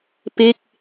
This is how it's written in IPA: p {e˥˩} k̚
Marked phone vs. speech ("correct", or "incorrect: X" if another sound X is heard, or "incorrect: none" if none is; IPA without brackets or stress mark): correct